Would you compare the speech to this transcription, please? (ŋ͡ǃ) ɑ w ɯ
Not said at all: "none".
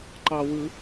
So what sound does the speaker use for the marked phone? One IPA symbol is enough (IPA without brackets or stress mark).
ǃ